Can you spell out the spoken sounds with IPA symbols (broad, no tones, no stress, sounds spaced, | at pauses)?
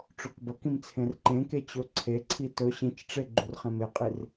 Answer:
ʈ͡ʂ o k b ɐ k ĩ m t͡sʰ ẽ r ǃ ẽ k e t͡ɕ ɵ ǀʰ e ǀʰ i t ɵ ɕ ĩ t͡ʃ ʈ͡ʂ e ɡ͡ǃ u r χ ẽ m e qʼ i r